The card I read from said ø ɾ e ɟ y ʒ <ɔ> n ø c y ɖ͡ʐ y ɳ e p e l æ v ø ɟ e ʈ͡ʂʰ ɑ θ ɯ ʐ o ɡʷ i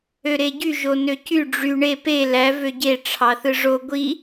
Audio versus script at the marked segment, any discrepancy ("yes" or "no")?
yes